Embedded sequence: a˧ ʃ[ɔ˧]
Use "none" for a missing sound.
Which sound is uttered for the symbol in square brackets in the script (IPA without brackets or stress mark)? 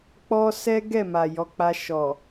ɔ˨